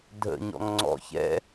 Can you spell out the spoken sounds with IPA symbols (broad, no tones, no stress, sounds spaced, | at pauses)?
dʱ ə̰ ɲ ɔ̰ ŋ ŋ͡ǀ ɔ̰ ç ɛ̰